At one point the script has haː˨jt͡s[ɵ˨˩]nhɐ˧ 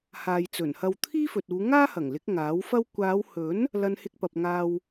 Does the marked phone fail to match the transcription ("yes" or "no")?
no